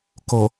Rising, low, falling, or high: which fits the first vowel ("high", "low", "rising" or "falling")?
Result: low